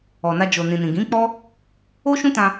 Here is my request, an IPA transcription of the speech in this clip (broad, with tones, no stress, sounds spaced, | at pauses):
ɔ˨ n a˧ d͡ʒ o˨ n ĩ˨ n ĩ˨ ɡ ĩ˨˦ k͡p ɔ˦ | o˦ ʃ ũ˦ t ã˧